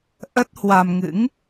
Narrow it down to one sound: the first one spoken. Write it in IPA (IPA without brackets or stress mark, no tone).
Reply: ʔ